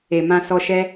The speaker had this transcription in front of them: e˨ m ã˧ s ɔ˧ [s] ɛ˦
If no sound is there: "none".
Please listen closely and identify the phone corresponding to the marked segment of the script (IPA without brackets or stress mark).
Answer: ʃ